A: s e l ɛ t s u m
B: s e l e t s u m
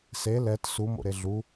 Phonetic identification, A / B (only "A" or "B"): A